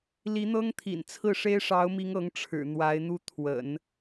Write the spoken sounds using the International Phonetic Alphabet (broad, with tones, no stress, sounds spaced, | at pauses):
l i˧˥ n̪ ɤ˥ ŋ t̪ʰ ḭ˨˩ n t͡sʰ ɹ̩˥˩ ʂ e˥ ɪ̯ ʂ ɑ˧˥ ʊ̯ m i˧˥ ŋ ɤ˧˥ ŋ ʈ͡ʂʰ ɻ̩˨˩ n̪ w a˧˥ ɪ̯ n̪ u˥˩ t̪ʰ w ə̰˨˩˦ n